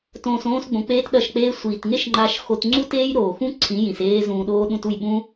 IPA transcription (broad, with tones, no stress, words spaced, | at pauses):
tõː˨s õː˧sɡ͡bõ˨k͡peː˧t ɗɐ˦˨ʃk͡peː˦ sʷiː˨tŋe˦ʃ ŋ͡ǃa˦ʃxo˦t ŋ͡ǀu˦teː˦jɾoː˨xũ˦ ǀʰĩ˨˦jĩ˨s eː˦zũː˧ɗoː˦ ɗũ˧tu˦˨jɓũ˦